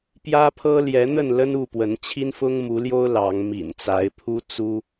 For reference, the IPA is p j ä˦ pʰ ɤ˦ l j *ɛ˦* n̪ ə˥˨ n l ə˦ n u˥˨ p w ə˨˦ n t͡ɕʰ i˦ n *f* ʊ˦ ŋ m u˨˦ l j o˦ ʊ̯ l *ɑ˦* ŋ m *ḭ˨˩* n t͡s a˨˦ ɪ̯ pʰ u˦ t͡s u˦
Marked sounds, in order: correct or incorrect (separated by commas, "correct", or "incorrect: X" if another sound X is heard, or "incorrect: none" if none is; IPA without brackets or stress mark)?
incorrect: ɛ˨˦, correct, incorrect: ɑ˨˦, correct